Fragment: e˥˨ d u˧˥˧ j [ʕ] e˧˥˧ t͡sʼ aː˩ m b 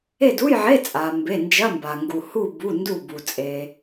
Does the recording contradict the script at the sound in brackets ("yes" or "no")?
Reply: no